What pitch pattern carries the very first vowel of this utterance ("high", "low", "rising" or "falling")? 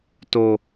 low